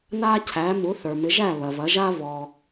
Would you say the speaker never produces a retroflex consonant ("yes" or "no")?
yes